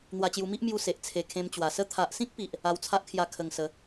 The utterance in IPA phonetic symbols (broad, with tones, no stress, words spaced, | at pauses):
n̪wa˧t͡ɕju˧ mi˦ʔmju˧ se˨ʔ t͡sʰe˧ kʰẽ˧m t͡ɕwa˨˩sə˦ t̪ʰa˨ʔsĩ˦k̚pi˨ʔ | a˧wt͡sʰa˦ʔkʰja˧ kʰə˧ŋsə˨˦